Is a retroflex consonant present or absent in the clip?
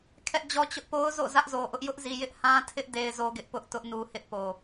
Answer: absent